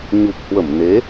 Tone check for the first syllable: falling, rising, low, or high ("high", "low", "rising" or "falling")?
low